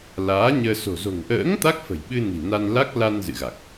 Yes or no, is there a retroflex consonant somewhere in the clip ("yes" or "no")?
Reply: no